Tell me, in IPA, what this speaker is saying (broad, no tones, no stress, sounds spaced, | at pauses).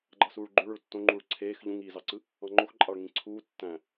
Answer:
ɡ͡ǃ ɑ s uː ɭ ɡ͡ǃ ø ɭ ø ɭ tː õ ŋ͡ǃ uː ɭ ǀʰ eː x ʎ ũ ŋ iː z ɑ ǀ ɯ | ɑ̃ ŋ͡ǃ o x ǃʼ ɑ ɭ ŋ ĩ ǀʰ uː tː æ̃